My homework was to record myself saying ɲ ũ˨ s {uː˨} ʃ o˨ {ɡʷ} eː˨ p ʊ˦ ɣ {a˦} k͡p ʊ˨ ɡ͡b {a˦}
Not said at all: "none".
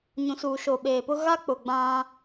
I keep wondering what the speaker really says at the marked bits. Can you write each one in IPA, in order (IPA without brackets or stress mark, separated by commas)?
uː˨, ɓ, a˦, ã˦